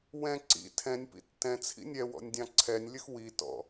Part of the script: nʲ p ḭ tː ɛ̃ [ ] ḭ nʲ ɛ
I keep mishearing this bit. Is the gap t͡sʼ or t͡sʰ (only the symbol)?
t͡sʰ